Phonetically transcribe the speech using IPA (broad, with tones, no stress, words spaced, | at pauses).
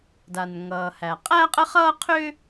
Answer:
da˩nŋʌː˩hæ˩ qʼæ˥qʼə˥χʌː˥ qʰʏ˥